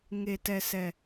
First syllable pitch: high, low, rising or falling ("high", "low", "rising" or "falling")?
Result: low